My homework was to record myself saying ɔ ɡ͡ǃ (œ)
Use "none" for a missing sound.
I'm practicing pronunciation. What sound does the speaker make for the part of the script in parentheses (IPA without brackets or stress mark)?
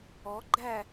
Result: æ